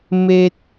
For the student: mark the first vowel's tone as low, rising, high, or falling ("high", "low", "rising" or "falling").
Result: low